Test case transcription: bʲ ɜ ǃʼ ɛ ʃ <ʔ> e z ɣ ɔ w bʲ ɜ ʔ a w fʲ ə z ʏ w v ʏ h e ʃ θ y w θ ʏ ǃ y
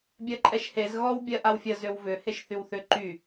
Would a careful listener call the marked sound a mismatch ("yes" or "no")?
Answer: yes